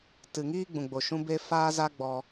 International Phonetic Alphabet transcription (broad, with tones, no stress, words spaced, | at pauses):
tɨ˨ŋiː˦ ɡ͡bũ˨ɡ͡bo˨ ʃũ˦ be˦ faː˦za˦ɡ͡bɔ˧